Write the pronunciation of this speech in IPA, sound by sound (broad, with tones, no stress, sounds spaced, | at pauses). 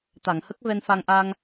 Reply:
t̪ a˨˩˨ ŋ h ə˦˥ k̚ v ɛ˧ n f a˧ ŋ ʔ a˧ ŋ